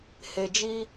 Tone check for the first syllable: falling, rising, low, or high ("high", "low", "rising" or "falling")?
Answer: low